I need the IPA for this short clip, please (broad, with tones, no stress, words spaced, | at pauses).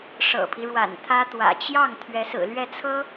ʂɤ̰˨˩pʰi˦ɻwa̰˨˩n t̪ʰä˥t̪wä̰˨˩ t͡ɕjɑ˥˩ŋ t̪ʰɥɛ˧˥sɹ̩˨˩ lɥɛ˥˩t͡sʰɤ˥